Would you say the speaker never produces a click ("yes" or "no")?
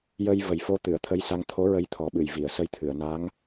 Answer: yes